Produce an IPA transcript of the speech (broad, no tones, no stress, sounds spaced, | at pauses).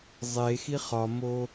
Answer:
zˤ e x i χ ɒ m o